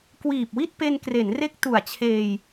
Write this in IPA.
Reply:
kwiː˨˩p̚wi˥˩t̚ pe˧nkre˩˦nre˦˥k̚ tu˨˩a̯t͡ɕʰeː˧j

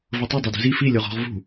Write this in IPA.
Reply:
vɤtˤu dˤɤdṳzi fi lʲoʁɔ̤ʁ vṳ

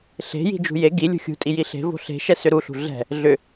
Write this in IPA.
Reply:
ɬe̤ji̤d͡ʒṳ je ɡi lʲṳxʲṳtʼi jiɬe̤ vo̤ɬe̤ʃɛ sʏɾuɬṳ ɮɛ̤ | ɮʏ

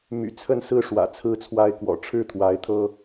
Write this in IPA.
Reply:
my̰˨˩ t͡sʰə˥˨nsɹ̩˥˨ ʂwä̰˨˩t͡sʰɹ̩˦t͡sʰwa˦ɪ̯kwɔ̰˨˩ ʈ͡ʂʰɻ̩˥˨t̪ʰwa˨˦ɪ̯t̪ʰɤ˦

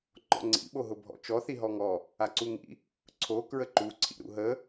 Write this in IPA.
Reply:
ŋ͡ǃɔ̰ŋ͡ǀḭɓo ɦʊbʱɔ̰t͡ʃɔθi ɦɔŋɔ | aǀuŋḭ | ǀʰo kɹəǃuǀʰḭ ɾṵɦə

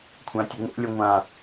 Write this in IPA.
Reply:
kʷʰãtʲɐŋo̰lʲo ŋʷã

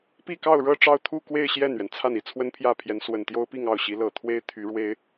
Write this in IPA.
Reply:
pi˥˧kɑ˥˧ʊ̯ɻɤ˥˧ ʈ͡ʂɑ˥˧ʊ̯t̪ʰu˥˧kwe˥˧ɪ̯ ɕjɛ˥˩nɥɛ˩n t͡sʰa˥˩ni˨˩ t͡sʰwə˥npʰjä˥˩pʰjɛ˧˥n swə˨˩nt̪jo˥ʊ̯pi˥˧ŋ ɑ˥˩ʊ̯ɕi˧˥ lɤ˨˩t̪ʰwe˥ɪ̯ t̪ʰy˧˥ɻwe˥ɪ̯

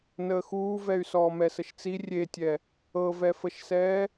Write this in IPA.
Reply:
nəːxuːvɛy̯ sɔːmɛsəʃt͡si rʲetʲɛ | ɤvɛfəʃsɛː

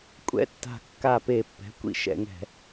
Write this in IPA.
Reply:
kʷʼɛ̰˧˥tːa̤˧˩kːa˧˩ pe˧˩˧pːɛ̤˩˥kʷḭ˧˩˧ ʃɛ̰˧˩˧ŋɛ̤˧˩˧

